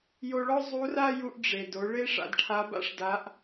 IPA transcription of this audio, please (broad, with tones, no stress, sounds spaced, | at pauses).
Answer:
j o˧ ɭ ɔ˥ zˤ u˧˥ r a˥ j u˧ ʔ ɖ͡ʐ e˩ d o˩˧ ɭ e˥ ʂ a̰˩˧ d ʈʰ a˧˥ b a̰˥ ʂ d a˧˥ ʔ